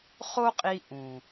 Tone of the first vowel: high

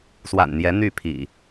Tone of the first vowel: low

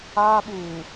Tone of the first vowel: high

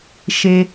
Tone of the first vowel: low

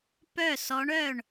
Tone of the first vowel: falling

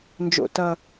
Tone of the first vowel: low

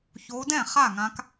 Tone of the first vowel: rising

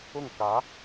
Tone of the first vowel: falling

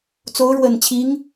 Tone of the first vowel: rising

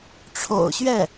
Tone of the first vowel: low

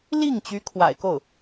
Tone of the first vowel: falling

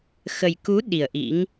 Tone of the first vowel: low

